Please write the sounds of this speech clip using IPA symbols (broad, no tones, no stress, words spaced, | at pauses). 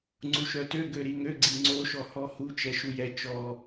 ŋ͡ǀuʃœtø ɡøɾiŋø ɡ͡ǀiŋ͡ǀo ʃɔhɔhu t͡ʃɛʃujɛ t͡ʃɔ